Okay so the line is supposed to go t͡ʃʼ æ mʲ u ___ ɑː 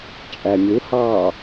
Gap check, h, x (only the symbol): h